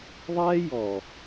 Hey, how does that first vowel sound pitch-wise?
high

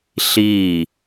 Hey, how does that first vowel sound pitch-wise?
falling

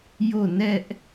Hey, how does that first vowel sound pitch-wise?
falling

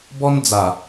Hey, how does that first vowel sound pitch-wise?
high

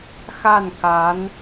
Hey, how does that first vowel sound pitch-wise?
falling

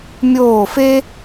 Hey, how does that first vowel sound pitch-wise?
falling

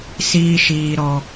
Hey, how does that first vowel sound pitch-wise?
high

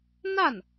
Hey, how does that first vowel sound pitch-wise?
falling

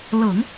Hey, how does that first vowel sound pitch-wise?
low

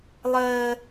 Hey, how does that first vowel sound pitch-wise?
high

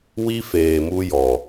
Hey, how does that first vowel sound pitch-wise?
high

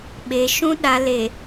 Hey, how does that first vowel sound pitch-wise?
low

